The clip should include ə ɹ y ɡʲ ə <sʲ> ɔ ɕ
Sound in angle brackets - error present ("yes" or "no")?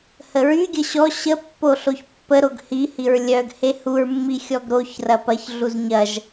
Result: yes